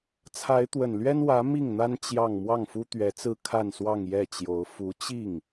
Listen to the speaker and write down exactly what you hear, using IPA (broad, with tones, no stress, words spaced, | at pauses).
t͡sʰa˧˥ɪ̯t̪wə˨˩n lɥɛ˥n wä˧˥ mi˥˩ŋn̪a˥n t͡ɕjɑ˥˧ŋ mwɑ˥˩ŋfu˥ t̪ɥɛ˧˥t͡sɹ̩˥ kʰa˥˧nswɑ˥˧ŋjɛ˥˩t͡ɕjo˧˥ʊ̯ fu˧˥t͡ɕi˥˩ŋ